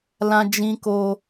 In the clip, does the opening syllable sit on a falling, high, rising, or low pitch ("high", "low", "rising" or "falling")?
high